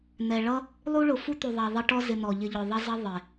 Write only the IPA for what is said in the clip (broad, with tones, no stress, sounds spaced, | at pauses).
n̪ ɛ˨ ɭ ʌ˦ | lˠ u˦ ɭ ʊ˧ f u˦ t̪ u˨ ðˤ ɑ˨ ðˤ ɪ˧ ʈ ɔ˦ z ɪ˧ n̪ ɔ˨ ʎ ɪ˧ ʎ ʊ˨ ðˤ ʌ˦ z ʌ˦ ðˤ ɪ˨